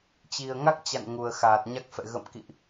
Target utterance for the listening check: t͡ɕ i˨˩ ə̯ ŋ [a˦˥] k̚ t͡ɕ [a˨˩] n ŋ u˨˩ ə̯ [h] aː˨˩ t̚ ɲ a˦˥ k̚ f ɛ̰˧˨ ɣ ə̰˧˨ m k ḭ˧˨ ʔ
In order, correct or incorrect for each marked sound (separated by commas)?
correct, incorrect, incorrect